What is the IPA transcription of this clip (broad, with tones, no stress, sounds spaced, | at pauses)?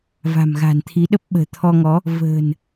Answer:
v a̤˨˩ m ɣ a̤˨˩ n t̪ʰ i˨˦ ɗ ə˦˥ p̚ ɓ ə̤ː˨˩ t̪ʰ ɔ˧ ŋ ɔ˨˦ | v ə̤ː˨˩ n